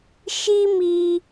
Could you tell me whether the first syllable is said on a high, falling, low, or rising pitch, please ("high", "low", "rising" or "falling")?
high